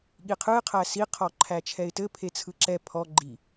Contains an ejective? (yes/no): no